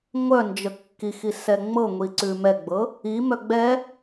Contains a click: yes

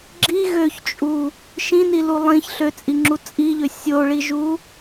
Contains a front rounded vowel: yes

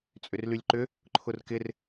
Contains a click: yes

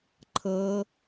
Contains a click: yes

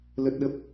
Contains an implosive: yes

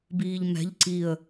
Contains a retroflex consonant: no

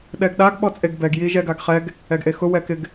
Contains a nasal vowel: no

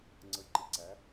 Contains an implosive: no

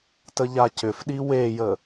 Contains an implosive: yes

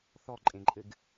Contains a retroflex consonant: no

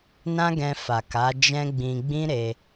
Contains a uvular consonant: no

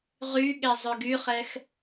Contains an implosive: yes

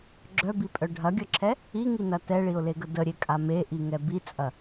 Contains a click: yes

